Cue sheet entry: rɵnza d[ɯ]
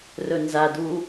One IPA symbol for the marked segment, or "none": u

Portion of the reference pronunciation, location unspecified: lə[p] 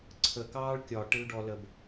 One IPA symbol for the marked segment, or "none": b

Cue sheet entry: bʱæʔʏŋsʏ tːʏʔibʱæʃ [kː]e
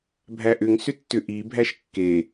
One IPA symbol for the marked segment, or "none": kː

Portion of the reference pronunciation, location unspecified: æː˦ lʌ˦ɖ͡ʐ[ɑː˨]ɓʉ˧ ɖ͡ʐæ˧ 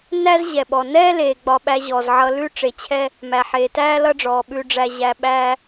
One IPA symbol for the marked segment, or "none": ɔː˨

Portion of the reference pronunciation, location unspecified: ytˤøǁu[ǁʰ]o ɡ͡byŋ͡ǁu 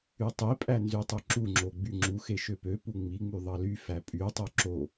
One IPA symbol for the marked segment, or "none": ŋ͡ǁ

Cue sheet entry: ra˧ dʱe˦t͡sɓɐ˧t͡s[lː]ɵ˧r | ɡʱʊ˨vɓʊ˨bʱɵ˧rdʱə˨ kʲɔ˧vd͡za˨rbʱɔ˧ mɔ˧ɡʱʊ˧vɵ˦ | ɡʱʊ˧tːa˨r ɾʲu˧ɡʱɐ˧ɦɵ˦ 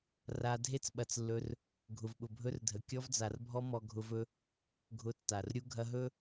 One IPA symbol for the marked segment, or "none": lː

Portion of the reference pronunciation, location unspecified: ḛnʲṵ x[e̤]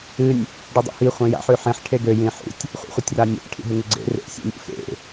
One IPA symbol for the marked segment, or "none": ḛ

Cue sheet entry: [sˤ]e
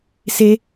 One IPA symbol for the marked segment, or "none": s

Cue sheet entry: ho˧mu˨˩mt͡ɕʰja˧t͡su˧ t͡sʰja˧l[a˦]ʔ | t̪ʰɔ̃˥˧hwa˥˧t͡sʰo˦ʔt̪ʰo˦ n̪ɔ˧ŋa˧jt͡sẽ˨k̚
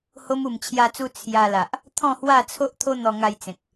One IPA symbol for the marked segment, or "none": a˨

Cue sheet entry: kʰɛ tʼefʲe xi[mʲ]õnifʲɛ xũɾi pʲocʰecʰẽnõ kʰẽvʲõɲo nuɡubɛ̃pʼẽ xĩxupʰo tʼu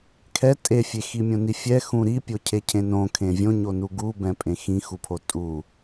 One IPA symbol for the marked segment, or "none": mʲ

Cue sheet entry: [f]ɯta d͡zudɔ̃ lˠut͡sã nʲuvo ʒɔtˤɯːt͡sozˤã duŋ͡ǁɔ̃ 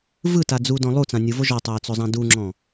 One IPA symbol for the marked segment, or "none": v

